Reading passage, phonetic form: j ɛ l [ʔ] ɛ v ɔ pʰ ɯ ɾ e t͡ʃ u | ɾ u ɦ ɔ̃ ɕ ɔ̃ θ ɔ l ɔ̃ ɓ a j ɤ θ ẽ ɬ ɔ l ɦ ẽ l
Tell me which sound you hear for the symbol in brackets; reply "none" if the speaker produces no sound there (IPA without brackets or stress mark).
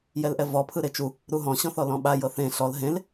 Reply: ʔ